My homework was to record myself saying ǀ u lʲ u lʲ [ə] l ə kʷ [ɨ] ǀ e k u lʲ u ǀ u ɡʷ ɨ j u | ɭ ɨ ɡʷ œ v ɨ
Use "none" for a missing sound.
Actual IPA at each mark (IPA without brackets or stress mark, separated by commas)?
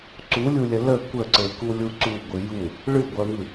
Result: ə, ə